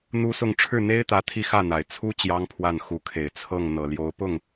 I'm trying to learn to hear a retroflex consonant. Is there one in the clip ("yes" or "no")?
yes